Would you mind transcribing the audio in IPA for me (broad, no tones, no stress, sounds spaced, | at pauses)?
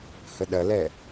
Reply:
h ə ɗ ɐ l ɛ